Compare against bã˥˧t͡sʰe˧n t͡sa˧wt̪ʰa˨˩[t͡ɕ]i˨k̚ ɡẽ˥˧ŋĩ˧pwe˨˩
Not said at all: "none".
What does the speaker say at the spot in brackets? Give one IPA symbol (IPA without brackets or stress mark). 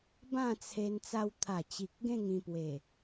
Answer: t͡ɕ